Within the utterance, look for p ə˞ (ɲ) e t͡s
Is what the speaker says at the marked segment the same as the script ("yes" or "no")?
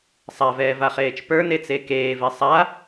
no